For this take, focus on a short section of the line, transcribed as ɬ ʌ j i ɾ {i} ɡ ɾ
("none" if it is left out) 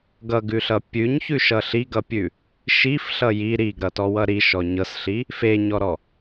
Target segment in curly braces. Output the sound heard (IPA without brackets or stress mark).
i